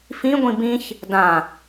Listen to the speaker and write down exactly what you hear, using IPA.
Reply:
fĩ ɡʷĩbĩç | dã

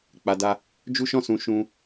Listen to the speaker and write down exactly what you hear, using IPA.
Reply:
k͡pa˨da˧ | d͡ʒu˦ʃɔ̃˦˨sũ˨ ʃũ˧

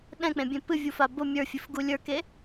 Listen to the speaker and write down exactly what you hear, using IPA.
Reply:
ɗɛ̃k͡pẽ bʲẽpɨvʲu fabʊ mʲə˞fʲɨfɡu lʲə˞ke

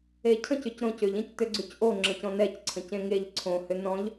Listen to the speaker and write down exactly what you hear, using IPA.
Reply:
ecʰə̃c ʏcɾõcʏʎ ẽctʏɡ͡ǀʉcʔo ŋ͡ǁə̃cɔ̃nɛc ǀʰə̃cẽŋeʎ ǀʰõ hʏnɔ̃ʎ

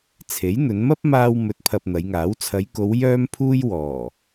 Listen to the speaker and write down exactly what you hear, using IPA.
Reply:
t͡sʰe˨˥jn̪ɵ˨˧n mɐ˥p̚ maː˧wmɵ˨˥t̚pʰɐ˨p̚ n̪ɐ˨˧jŋaː˨˥w t͡sʰɐ˨˧jko˨˧w jœː˥mpʰuː˥j wɔː˨˩

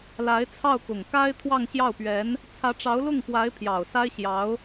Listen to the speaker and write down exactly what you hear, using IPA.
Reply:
la˧˥ɪ̯t͡sʰɑ˥˩ʊ̯ kʊ˨˩ŋka˥ɪ̯ t̪ʰwɑ˥˧ŋɕjɑ˥˩ʊ̯pɥɛ˧˥n | t͡sʰä˧˥ʈ͡ʂɑ˧˥ʊ̯lʊ˥˩ŋpwa˧˥ɪ̯ pʰjɑ˨˩ʊ̯sa˥ɪ̯ɕjɑ˧˥ʊ̯

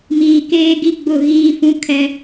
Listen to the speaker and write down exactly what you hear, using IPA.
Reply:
miː˨keː˦ɡi˦ ɡ͡bʊ˦˨ɣiː˦fũ˦ kʰɛ˦

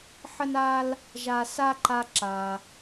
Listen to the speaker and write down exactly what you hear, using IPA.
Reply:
ħə˥na˥l | ʒa˨sa˦ ǃa˦ǁa˩

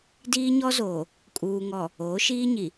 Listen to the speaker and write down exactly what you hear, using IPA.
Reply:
diː˦ɲɔ˦zoː˨ | kʼuː˨ŋɔ˨ | oː˨˦ʃiː˦ɲi˨

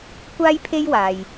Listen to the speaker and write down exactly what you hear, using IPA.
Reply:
kʷaː˥jpʰe˥jwaː˨j

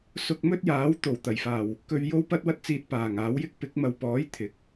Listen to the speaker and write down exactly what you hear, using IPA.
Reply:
sʊ˧k̚mɵ˥t̚jaː˨˥w t̪o˨˩wt̪ɐ˨˩jfaː˨˩w | kɵ˧ɥ jo˥wpɐ˥t̚wɐ˥t̚t͡siː˧t̚ paː˨˩ŋ aː˨˥wjɪ˥k̚ pɪ˨˥k̚mɐ˨wpɔː˨˥j t̪ʰɪ˨˥k̚

